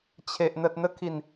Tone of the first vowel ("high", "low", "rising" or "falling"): low